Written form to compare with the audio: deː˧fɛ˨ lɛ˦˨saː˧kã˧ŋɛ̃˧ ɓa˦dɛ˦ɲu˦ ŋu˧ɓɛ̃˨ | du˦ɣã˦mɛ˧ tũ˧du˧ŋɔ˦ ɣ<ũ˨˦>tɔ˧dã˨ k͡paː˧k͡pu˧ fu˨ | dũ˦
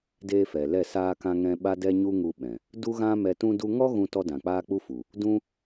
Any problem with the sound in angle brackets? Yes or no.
yes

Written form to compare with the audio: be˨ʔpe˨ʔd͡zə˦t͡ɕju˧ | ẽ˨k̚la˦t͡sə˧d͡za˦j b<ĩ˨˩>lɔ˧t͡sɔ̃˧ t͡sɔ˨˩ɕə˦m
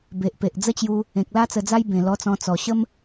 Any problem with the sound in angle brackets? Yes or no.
yes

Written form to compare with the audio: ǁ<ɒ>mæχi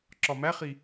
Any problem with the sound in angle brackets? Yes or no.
no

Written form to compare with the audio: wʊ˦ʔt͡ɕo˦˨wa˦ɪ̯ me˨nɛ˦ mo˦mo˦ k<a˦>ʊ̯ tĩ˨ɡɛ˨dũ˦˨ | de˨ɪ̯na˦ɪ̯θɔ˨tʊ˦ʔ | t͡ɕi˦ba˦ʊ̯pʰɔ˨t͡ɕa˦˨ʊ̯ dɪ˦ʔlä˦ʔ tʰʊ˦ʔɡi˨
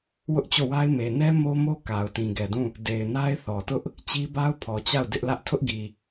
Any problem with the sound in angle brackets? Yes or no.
yes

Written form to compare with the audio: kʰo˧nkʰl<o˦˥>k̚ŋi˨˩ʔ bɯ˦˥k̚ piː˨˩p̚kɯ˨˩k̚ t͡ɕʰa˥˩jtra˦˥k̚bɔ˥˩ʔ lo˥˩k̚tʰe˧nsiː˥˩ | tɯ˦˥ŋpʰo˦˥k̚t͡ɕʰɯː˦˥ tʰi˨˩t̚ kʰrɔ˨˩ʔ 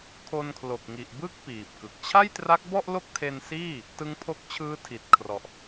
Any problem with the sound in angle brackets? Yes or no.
yes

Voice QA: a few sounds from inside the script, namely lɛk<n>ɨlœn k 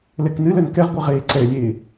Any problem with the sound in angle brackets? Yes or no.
no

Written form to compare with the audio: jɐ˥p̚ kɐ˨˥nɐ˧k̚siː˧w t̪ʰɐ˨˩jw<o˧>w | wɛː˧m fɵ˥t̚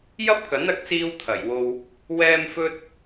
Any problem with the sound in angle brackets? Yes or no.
no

